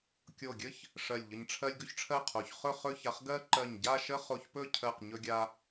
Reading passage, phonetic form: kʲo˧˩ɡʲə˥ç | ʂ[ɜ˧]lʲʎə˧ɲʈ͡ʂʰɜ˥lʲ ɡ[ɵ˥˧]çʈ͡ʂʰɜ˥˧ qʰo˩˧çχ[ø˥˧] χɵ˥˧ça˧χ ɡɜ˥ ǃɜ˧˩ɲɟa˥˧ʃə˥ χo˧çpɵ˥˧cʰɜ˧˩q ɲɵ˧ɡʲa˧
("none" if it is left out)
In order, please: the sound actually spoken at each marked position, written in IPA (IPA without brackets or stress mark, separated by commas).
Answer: ɜ˧˩, ɵ˥, ɵ˥˧